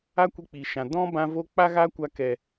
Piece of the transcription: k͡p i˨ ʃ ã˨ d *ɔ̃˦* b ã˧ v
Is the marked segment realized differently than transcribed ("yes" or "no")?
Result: no